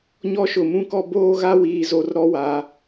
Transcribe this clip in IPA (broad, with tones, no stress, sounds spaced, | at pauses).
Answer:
ɲ ɔ˦ ʃ ʊ˨ m ũ˦ k ɔ˦ b oː˦ ɣ a˦ w iː˨ z o˨ r ɾ ɔ˦ w a˨˦